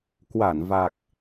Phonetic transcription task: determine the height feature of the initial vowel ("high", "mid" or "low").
low